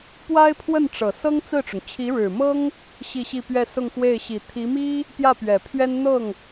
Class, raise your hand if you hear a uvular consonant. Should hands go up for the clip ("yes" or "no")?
no